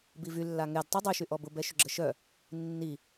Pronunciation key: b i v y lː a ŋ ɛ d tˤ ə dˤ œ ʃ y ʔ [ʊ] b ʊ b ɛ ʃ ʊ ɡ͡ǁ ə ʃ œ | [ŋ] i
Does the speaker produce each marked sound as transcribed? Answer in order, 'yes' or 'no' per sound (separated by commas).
no, no